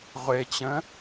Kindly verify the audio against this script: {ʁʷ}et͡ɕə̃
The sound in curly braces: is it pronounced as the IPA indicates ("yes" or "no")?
yes